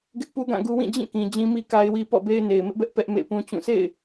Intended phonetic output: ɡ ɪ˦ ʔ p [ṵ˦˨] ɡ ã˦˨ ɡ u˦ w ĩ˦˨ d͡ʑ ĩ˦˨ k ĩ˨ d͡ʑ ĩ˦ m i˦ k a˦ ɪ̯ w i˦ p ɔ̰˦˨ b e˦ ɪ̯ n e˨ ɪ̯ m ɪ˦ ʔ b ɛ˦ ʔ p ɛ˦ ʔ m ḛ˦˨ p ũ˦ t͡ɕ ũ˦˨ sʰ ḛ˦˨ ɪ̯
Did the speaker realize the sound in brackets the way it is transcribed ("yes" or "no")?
no